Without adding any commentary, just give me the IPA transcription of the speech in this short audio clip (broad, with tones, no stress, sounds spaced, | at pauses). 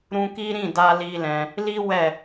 ɾ ũ˧ k i˦ ɾ ĩ˦˨ d a˧ l i˦ l ɛ̃˧ | l i˦ w ɛ˦˨